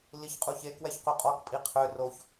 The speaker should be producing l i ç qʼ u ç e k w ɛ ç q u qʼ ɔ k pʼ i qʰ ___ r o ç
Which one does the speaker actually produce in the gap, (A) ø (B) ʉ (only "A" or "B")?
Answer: A